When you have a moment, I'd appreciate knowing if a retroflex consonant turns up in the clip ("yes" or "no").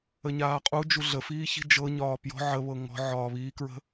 no